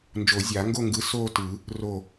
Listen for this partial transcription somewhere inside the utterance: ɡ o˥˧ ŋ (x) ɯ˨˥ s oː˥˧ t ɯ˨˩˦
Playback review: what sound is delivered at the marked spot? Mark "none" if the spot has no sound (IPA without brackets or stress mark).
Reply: ɡ